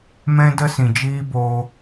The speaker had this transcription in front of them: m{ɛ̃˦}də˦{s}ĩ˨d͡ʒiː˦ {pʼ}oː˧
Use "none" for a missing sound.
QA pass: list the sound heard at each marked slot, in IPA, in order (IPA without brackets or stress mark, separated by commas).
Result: ɛ̃˦, s, b